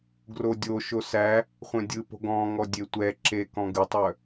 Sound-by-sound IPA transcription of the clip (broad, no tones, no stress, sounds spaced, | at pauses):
ɡ r o dʲ o ʃ o s æ | χʷ œ̃ dʲ ɯ p o̤ ɡ ɔ̃ ŋ ɔ dʲ e tʷ ɛ ǁ e k ɔ̃ ɡ ɯ tˤ œ